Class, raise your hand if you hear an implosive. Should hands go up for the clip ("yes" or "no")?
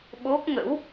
yes